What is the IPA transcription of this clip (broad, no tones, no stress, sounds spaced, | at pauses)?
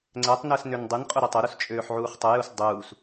ŋ͡ǀ ɛ tˤ n əː s n ø n dˤ ɯ n qʼ ʊ ɾ ɯ tˤ ʊ ɾ u s t͡ʃʼ øː ħ ʕ uː χ tˤ ə j u s dˤ uː s